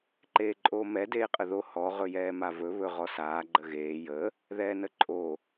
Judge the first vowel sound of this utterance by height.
mid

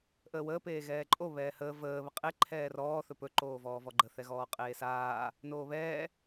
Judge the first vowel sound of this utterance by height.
mid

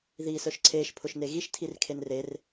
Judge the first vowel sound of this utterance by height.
high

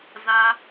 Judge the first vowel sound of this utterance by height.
low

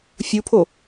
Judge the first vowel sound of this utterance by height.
high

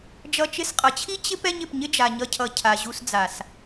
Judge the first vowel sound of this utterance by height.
mid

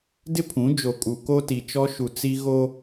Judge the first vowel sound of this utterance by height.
high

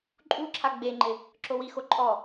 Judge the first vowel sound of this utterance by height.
high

